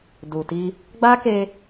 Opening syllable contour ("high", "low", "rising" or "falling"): low